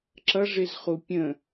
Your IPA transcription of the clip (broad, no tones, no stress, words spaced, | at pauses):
ǁʌʐɪzχu pʲə̃